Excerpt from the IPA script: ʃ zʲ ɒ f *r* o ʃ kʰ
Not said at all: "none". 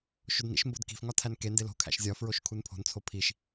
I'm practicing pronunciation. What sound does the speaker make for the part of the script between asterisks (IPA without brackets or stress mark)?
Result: ɹ